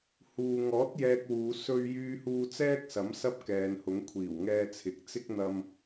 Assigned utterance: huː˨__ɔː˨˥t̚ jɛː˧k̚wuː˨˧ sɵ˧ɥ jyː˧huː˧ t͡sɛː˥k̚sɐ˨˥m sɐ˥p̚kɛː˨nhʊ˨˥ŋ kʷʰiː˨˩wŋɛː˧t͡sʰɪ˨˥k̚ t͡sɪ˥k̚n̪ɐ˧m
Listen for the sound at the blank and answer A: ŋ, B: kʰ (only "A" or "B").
A